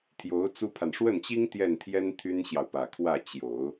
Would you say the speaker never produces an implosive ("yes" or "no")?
yes